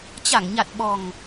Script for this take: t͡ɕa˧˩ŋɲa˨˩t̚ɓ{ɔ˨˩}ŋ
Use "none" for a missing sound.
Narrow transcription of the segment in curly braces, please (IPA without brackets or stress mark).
ɔ˨˩